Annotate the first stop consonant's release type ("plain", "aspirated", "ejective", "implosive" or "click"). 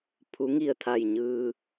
aspirated